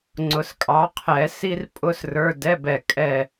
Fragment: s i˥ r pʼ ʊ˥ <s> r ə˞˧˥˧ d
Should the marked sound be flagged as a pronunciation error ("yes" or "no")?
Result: no